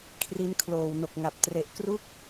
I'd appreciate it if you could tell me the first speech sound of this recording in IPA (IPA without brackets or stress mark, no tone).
kʰ